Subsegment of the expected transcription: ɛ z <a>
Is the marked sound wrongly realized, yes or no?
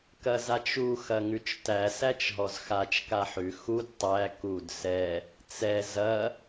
yes